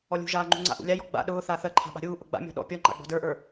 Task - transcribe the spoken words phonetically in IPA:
ɔlʲṳʒaːŋ͡ǃṳ ŋ͡ǀa̰ʔṵlʲajɔ ɡ͡ba̰ ɗʊː θaːθɜǃʰa̤ ɓa̤ɾʲuː ʔʊɡ͡ba̰ mʲɔ̤ɗɔ̰ pʲɔŋ͡ǃa̰ɡ͡bɔ̤ də˞ʔə˞

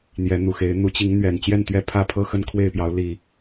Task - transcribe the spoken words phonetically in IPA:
n̪jɛ˨˦n̪u˨˩xe˨˦ɪ̯ n̪u˨˦t͡ɕi˨˦ŋ n̪ɥɛ˨˩n t͡ɕjɛ˥˨nt̪ɥɛ˦ pʰä˦pʰɤ˦ xə˥˨nkʰwe˥˨ɪ̯pjɑ˨˦ʊ̯ li˨˩

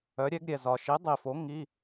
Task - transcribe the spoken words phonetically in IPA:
œ˨˥ɾʲɛ˨˥ɡɾʲɛ˨ zɒ˨ʃi˨˥ dˤi˨fo˨˥ ŋi˧˥˧

